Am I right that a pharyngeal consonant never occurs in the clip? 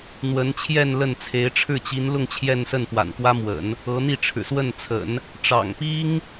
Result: yes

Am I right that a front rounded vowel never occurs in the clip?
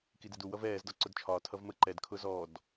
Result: yes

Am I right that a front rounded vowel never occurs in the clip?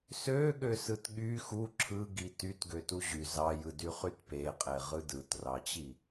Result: no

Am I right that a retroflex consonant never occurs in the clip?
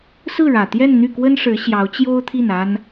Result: no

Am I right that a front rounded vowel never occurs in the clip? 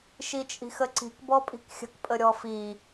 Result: yes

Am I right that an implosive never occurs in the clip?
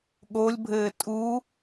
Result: no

